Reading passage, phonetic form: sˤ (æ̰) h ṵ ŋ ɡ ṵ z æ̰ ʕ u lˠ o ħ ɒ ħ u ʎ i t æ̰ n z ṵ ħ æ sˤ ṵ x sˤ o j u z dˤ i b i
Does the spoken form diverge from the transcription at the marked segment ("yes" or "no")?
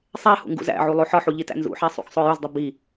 yes